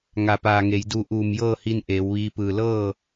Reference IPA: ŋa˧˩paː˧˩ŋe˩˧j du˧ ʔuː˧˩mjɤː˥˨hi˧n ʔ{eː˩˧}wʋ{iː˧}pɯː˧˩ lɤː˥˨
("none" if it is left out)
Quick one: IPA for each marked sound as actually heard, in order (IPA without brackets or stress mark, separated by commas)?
eː˩˧, iː˧